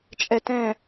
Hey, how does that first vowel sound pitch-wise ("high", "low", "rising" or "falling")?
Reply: low